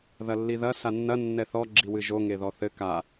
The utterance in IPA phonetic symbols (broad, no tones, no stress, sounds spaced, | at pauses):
ð ɐ lː i ð ɐ s a nː ɐ nː ɛ θ ɔ ɡ͡ǁ i w ɨ ʒ o ŋ e ð ɔ θ ɘ k a